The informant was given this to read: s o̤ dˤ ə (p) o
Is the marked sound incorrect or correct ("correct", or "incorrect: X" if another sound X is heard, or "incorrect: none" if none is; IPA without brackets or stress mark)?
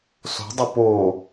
correct